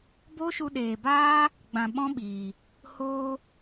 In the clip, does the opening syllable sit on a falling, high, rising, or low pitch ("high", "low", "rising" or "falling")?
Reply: high